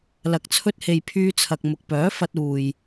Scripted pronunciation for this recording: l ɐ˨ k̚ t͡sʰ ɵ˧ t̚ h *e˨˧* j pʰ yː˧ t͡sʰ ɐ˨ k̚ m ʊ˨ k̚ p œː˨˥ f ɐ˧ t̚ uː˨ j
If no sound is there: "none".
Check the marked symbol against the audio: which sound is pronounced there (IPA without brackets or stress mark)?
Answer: e˨